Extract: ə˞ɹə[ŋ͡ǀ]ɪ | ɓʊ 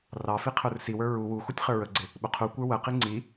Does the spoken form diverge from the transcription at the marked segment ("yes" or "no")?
yes